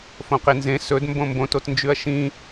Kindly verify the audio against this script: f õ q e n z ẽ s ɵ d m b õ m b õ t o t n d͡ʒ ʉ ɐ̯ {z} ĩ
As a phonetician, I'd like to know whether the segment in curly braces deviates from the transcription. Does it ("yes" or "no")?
yes